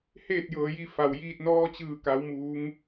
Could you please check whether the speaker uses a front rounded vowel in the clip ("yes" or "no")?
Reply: no